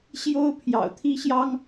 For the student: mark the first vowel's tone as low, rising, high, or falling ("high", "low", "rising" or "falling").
high